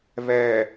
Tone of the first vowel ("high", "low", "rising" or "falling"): low